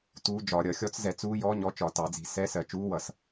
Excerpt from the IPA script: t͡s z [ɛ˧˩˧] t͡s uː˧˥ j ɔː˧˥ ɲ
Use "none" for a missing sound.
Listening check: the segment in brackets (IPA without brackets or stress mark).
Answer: ɛ˧˩˧